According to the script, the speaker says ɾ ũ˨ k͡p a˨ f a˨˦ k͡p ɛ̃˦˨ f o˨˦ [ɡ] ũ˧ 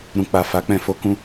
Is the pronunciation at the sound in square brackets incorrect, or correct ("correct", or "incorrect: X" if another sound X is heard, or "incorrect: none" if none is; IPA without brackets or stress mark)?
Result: incorrect: k